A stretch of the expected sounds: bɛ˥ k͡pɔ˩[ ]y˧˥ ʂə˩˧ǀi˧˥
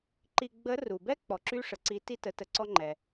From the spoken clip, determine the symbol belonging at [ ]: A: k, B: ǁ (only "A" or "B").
B